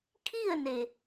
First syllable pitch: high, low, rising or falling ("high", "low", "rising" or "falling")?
falling